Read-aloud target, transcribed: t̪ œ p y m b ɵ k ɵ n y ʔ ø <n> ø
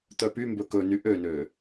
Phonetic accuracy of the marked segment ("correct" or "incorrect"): correct